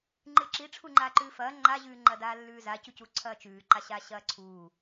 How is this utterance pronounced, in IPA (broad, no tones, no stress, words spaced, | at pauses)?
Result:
ŋ͡ǃɨǁi ʈ͡ʂʰuŋ͡ǃaːǃʉːfɐː ŋ͡ǃaʑʉːŋ͡ǃɐdaː lːʉːzacucu ǀʰɐːt͡ʃʉːǃa ɕaɕɐːǀʰuː